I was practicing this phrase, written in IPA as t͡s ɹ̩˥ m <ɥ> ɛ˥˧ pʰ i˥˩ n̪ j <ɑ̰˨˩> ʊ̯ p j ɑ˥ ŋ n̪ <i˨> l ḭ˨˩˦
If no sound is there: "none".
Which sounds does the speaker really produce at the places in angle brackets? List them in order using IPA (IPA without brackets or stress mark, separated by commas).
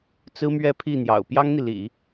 ɥ, ɑ̰˨˩, i˨